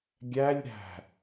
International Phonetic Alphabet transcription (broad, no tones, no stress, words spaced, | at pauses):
ɡʲælʲ ɾæ̤